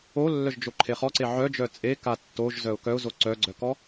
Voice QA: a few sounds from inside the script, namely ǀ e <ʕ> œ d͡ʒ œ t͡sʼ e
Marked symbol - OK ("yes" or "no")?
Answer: yes